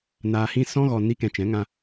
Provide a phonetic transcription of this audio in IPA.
n aː˨ h ĩ˧ s ɔ̃˦ ɣ ɔ˨ n i˧ k ɛ̃˨ t͡ʃ ɛ̃˨˦ ŋ ã˧

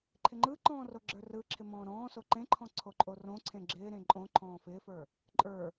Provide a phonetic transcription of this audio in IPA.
ǃʰ ɪ ŋ͡ǃ ɯ ǃ ɔ̃ː r o ɡ͡ǁ ə˞ r ɯ ǁʰ ɪ m ɔ̃ː ɾ ɔ̃ː s o ǃ ẽ ǃʰ ɔ̃ ǀʰ o ǃʼ o r õ ǀʰ ẽ ɡ͡ǁ ɪː ɾ ẽ ǃʼ õ ǃʰ ɔ̃ː f ɪː f ə˞ | ǃʼ ə˞

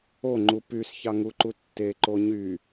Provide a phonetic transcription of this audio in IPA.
o ŋ͡ǃ u p y s ç ɑ ŋ u ǃ u tː e ǃ o ɲ y

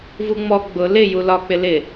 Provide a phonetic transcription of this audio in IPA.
v u ŋ͡m ɔ ɡ͡b ʊ l ɪ j u l ɒ k͡p ɪ l ɪ

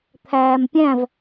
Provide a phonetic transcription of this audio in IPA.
t̪ʰ æː m pʲ æ̃ v

